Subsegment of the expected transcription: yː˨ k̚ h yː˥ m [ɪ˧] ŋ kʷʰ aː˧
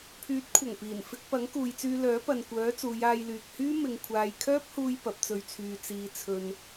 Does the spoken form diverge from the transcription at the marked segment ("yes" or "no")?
no